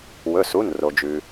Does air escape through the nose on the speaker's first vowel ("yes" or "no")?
no